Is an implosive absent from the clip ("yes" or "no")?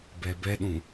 no